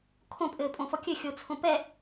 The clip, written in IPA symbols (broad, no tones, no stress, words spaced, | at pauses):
kʰõpʼɘːpʼõfɔ kʲɘxʲot͡sʰõ pɛ